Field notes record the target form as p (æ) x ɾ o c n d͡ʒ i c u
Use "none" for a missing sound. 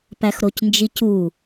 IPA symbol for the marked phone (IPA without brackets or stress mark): æ